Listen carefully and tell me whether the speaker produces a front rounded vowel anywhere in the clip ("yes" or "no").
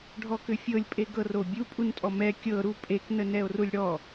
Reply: yes